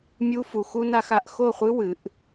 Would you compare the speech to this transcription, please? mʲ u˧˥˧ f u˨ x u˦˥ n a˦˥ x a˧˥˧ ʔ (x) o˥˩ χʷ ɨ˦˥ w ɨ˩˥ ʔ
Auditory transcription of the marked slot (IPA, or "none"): x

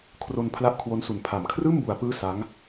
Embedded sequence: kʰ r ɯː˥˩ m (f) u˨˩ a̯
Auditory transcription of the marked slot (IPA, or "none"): b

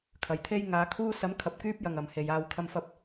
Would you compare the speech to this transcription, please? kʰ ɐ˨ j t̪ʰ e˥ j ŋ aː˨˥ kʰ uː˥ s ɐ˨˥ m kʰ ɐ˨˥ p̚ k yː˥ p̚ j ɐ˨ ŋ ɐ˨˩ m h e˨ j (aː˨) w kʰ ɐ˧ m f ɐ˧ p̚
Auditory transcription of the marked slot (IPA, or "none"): aː˧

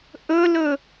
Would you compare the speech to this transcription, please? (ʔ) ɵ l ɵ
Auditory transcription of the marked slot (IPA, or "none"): ʔ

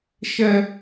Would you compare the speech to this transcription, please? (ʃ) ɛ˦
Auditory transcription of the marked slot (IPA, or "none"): ʃ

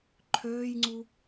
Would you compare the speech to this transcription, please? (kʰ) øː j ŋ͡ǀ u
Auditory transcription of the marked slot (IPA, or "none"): ǃʰ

